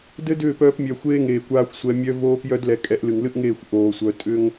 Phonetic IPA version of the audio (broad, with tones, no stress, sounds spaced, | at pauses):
d ɘ˦ d ʏː˦˨ p œː˧ p mʲ œ˨ xʷ eː˦ ŋ eː˨ kʷ aː˧ xʷ sʷ ɛ˧ mʲ œ˦ v oː˦ p j œ˦ d l ɛ˧ kʼ ɛ˨˦ ʔ l ɨ˨ ŋ l ɨ˦ ʔ ŋ eː˦˨ xʷ ʔ oː˨ sʷ œ˧ tʼ ʏ˦ ŋ